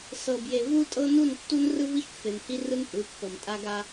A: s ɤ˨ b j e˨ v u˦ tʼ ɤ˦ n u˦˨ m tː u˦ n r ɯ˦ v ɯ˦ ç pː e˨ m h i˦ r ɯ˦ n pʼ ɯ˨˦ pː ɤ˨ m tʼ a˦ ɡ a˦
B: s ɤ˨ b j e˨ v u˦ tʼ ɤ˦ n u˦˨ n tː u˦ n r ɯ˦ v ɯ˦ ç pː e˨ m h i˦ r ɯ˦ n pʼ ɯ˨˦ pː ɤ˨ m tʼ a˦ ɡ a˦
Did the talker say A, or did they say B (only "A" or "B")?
B